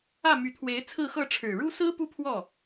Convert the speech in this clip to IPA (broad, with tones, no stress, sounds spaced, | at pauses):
ä˥˩ m y˧˥ t̪ʰ w e˧˥ ɪ̯ t͡sʰ ɹ̩˥˧ x ɤ˥˩ ʈ͡ʂʰ ɻ̩˨˩ ɻ u˥ s ɹ̩˥ p u˥ pʰ w ɔ˥˩